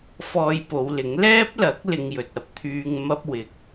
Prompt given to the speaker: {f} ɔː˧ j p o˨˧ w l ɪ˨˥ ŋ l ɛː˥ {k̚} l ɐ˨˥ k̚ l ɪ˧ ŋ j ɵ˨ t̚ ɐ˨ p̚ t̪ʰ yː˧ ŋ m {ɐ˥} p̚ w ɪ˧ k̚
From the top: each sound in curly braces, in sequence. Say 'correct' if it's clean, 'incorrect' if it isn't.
correct, incorrect: p̚, correct

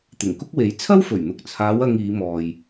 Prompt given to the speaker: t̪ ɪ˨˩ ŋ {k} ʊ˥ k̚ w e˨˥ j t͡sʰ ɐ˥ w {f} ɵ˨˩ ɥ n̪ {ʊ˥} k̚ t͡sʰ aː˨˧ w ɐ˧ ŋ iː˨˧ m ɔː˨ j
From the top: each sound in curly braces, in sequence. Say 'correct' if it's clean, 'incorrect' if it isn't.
correct, correct, incorrect: ʊ˨

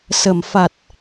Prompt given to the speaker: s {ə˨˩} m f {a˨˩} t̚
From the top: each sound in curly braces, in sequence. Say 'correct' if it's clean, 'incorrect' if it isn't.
correct, correct

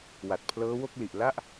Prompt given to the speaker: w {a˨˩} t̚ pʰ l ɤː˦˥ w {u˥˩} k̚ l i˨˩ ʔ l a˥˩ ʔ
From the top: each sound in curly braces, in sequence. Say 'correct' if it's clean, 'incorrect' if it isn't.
correct, incorrect: o˥˩

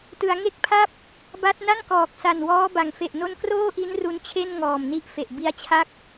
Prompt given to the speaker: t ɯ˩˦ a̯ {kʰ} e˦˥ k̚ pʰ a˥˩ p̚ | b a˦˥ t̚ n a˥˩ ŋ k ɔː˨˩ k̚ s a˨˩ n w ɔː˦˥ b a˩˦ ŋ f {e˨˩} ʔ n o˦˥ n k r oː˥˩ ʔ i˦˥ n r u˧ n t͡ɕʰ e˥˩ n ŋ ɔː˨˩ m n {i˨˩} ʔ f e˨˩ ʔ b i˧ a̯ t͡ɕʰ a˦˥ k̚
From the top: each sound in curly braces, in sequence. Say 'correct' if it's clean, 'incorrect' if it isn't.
incorrect: ŋ, correct, incorrect: i˦˥

